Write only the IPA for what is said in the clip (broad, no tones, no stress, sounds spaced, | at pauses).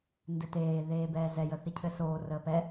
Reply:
n d ɘ t eː ð eː b ɛː z ɛ j ə θ i cʰ ɘ s oː r əː p ɛ